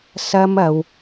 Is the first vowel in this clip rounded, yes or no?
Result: no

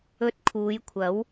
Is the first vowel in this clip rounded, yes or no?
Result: yes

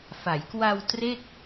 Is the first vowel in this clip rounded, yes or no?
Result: no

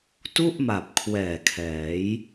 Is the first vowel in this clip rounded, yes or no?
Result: yes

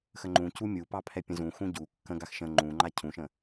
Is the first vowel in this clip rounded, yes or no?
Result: no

